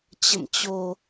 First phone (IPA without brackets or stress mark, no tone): t͡ɕ